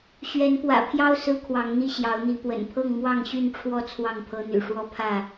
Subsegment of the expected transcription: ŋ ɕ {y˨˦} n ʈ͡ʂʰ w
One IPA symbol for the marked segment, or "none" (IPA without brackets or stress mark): y˥˨